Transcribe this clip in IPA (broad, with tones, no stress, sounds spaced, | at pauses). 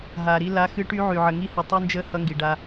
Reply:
ɦ a˨ ɾ i˦ l a˦ x ɨ˦ ʈ y˦ ʕ y˨ ʕ ə˨ ŋ i˦ h ɨ˨ tˤ y˦ n d͡ʒ ə˦ h ʌ˦ ŋ ɡ i˨ ɖ a˦